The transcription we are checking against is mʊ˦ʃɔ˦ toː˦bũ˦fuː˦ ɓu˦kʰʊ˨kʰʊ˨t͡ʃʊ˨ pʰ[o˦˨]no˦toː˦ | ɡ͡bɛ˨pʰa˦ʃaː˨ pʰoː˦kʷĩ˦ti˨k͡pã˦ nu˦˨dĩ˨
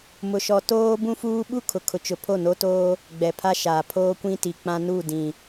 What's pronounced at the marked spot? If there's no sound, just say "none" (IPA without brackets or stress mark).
o˦˨